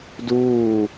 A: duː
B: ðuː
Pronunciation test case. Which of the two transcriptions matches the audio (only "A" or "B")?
A